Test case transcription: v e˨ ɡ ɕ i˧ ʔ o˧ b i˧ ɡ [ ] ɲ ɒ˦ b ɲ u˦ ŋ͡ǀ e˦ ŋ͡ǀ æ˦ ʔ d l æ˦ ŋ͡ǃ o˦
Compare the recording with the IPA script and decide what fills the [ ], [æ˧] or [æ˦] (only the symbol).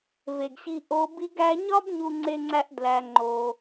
æ˧